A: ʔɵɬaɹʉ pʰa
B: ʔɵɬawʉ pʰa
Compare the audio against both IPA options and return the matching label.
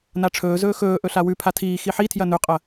B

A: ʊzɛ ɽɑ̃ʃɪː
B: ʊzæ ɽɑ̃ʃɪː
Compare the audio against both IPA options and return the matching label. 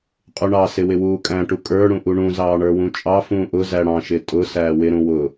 B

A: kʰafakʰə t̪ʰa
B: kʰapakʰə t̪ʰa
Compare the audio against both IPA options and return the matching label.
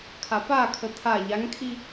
B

